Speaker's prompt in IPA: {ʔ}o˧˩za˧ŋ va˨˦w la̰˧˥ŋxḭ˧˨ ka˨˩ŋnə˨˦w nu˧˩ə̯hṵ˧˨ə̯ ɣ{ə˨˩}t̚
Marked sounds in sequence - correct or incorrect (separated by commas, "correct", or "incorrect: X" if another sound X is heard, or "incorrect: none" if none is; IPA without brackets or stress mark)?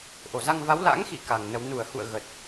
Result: correct, correct